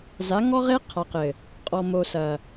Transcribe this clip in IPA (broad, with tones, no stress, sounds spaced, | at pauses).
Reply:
z a˨˦ ŋ ɔ˦ ʁ e˦ qʰ a˨ q ɘ˨ | qʼ ɔ˨ m o˨ s ɐ˨